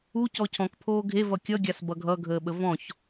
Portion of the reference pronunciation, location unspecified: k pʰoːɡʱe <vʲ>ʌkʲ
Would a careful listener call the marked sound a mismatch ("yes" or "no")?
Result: yes